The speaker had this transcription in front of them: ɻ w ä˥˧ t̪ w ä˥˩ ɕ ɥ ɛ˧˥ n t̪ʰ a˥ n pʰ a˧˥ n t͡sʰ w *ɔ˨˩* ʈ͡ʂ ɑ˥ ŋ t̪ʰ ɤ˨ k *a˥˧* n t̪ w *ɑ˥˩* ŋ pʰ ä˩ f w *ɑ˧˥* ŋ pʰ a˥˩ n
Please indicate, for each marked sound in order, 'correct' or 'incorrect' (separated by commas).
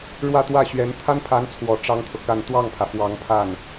correct, correct, correct, correct